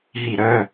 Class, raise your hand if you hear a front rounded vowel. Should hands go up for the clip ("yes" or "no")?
yes